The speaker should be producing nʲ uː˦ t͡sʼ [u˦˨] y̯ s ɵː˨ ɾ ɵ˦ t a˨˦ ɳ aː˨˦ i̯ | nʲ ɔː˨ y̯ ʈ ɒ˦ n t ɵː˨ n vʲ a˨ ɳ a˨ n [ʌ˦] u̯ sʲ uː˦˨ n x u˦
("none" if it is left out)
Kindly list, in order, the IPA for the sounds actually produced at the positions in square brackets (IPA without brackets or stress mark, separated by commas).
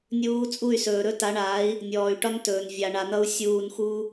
u˦˨, ʌ˦